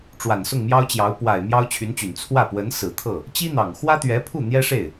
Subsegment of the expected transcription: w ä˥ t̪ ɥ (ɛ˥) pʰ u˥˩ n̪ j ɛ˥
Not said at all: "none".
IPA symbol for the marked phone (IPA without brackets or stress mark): ɛ˧˥